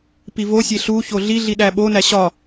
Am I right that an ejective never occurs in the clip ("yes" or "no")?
yes